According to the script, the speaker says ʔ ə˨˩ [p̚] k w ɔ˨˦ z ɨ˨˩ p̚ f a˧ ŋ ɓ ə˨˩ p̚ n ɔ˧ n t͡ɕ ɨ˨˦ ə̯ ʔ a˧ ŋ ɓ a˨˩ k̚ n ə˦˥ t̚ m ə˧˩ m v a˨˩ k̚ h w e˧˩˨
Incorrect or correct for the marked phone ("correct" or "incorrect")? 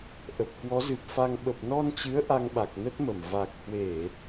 correct